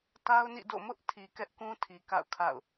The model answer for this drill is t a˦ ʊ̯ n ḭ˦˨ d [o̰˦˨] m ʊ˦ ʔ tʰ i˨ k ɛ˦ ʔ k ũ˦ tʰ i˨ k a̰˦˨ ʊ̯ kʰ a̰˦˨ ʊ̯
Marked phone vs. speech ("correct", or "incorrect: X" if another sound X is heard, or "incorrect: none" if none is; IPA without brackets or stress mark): correct